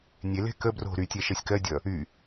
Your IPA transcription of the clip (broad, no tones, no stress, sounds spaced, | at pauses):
nʲ e l e̤ k ə b r o̤ ɾ y tʲ ɛ ʃ ɜ sʲ k ɜ dʲ ʌ | y